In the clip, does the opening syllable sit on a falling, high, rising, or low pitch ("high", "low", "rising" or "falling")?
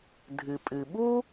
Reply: low